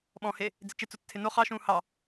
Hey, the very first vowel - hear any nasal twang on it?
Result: yes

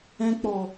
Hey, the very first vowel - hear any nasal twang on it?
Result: yes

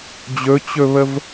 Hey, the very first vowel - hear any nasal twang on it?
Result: no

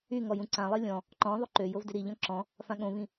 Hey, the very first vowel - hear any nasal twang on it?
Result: no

